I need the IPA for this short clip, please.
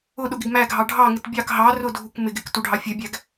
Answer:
ʊ ɗ ʊ ɡ ɪ ɡ m æ ɡʱ ɑ ɖʱ ɑ ŋ ɪ t bʲ ɑ k ɦ ɑ r ʊ dʱ u k m ɪ ɡ ɪ k t u ɖʱ ɑ fʲ ɛ bʲ æ ɡ

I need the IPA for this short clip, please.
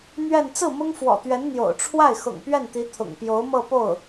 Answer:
n̪ ɥ ɛ˥˧ n t͡s ɹ̩˥˩ m ʊ˥ ŋ f w ɔ̰˨˩ t̪ ɥ ɛ˧˥ n n̪ j o̰˨˩ ʊ̯ ʈ͡ʂʰ w a˥˩ ɪ̯ x ʊ̰˨˩ ŋ p ɥ ɛ˥˩ n t̪ i˧˥ t̪ʰ ʊ̰˨˩ ŋ p j o˧˥ ʊ̯ m ɤ˥˧ p o˥˩ ʊ̯

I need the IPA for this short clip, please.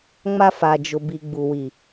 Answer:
ŋ͡m a˦ f a˨ d͡ʒ ʊ˨ b i˨ ɡ͡b u˨ w i˨

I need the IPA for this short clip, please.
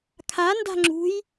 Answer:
kʰ a n d a̤ ŋ͡ǁ ṳ j

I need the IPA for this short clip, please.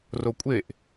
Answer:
r o kʷʼ e ʔ

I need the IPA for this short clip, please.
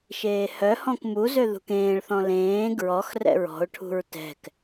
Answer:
ʃ eː h œ h ɔ̃ k m u z ø ð ṳ k ẽː ɭ θ ɔ̃ l ẽː ɡ ɹ ɔ x r ɛ̰ ɹ ɔ̤ ʊ̯ ʈʰ ṳ ɹ t ɛ̤ k

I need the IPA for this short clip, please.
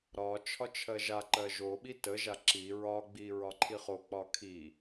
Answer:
ɾ ɒ t͡ʃʰ ɒ t͡ʃʰ ɜ ʒ a ǃ ɜ ʒ o ɓ i t ə ʒ a ǁ i ɹ ɒ ɡ͡b i ɹ ɒ ǃʰ i χ o k͡p ɒ kʰ i

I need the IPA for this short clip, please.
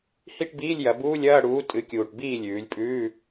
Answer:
h i˥˨ ʈ b iː˧˥˧ lʲ j ɐ˩˧ b uː˧˥˧ lʲ ɐː˧˥˧ ɽ uː˨˥ tʼ ɨ˨˥ kʲ uː˨˩ ʈ b iː˥˨ lʲ ʉː˩˧ lʲ pʼ ʉː˧˥˧

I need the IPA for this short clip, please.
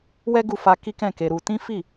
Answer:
w ɛ˦ ɡ u˧ f a˧ k i˦ k ɛ̃˦˨ k e˧ ɾ u˧ t ĩ˦ f i˦˨

